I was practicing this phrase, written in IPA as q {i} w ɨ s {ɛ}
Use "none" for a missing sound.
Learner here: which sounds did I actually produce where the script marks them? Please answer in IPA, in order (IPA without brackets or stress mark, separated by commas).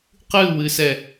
ɨ, ɛ